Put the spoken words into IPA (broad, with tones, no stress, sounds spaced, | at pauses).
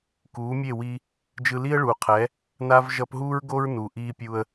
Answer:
k uː˨˦ mʲ e˦˨ w i˧ | d͡ʒ ɯ˧ l i˦ ə̯ ɭ uː˨ qʰ ɛ˨˦ | n a˦ v ʒ ʌ˧ p ɦ uː˦ ɹ ɡ o˦ ɹ n u˨ ʔ iː˧ pʲ u˧ ə̯